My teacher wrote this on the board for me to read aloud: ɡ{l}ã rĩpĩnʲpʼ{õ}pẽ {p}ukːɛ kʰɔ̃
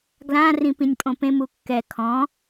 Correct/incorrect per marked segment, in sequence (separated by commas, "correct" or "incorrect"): correct, correct, incorrect